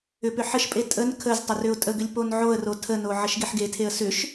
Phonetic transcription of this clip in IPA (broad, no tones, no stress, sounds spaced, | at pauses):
ʏ p ʏ ħ ə ʃ pʼ e tʼ ə n kʰ ə z tˤ ə r ʏ ʊ̯ tʼ ə ɡ ʏ lʲ p o n ʕ o ə̯ r o tʰ ə n o ʕ ə ʃ ɡ e ħ ɡ e tʰ e ə̯ s ʏ ʃ